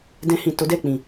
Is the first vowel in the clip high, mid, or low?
mid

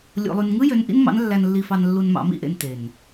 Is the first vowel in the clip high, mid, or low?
mid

